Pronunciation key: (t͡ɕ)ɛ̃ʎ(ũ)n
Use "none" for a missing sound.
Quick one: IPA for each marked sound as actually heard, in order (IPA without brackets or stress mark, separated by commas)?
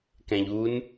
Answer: k, u